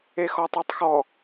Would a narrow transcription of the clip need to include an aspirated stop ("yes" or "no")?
no